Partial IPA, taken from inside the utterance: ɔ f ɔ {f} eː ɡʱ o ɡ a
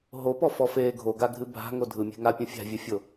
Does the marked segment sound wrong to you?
no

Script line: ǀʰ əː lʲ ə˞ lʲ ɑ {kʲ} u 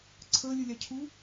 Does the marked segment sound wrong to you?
yes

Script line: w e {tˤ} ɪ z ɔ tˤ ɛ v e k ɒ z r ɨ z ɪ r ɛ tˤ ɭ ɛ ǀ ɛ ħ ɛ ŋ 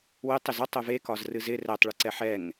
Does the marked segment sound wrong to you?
no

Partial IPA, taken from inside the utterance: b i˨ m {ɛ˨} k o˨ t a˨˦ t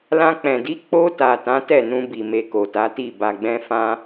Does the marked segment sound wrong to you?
yes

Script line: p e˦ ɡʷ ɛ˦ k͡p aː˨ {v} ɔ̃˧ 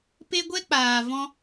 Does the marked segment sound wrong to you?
no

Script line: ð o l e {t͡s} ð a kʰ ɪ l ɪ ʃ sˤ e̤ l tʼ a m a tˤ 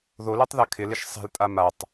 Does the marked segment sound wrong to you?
yes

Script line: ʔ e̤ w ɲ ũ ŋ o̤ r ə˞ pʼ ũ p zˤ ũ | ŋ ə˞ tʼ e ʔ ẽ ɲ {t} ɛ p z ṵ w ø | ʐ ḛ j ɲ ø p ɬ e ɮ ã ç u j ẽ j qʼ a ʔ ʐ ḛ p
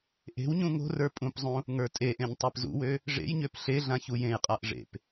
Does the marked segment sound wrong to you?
yes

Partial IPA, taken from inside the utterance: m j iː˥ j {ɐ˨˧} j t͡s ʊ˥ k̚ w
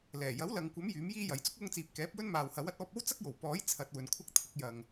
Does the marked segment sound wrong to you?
no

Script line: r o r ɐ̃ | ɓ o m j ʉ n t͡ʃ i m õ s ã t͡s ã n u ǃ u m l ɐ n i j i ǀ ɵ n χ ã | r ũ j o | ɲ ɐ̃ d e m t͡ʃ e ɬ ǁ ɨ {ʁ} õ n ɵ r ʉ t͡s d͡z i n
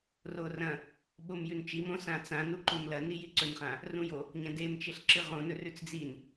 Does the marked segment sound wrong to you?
no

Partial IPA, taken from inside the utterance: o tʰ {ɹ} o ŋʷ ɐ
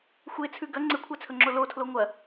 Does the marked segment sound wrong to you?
yes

